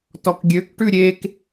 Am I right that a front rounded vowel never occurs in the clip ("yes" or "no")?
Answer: no